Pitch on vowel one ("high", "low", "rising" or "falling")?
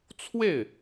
falling